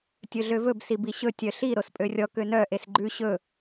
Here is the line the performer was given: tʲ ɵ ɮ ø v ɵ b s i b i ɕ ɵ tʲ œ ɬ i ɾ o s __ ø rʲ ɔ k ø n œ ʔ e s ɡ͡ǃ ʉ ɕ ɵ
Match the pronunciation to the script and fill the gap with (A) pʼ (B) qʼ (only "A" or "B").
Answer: A